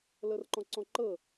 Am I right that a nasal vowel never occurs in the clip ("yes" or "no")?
no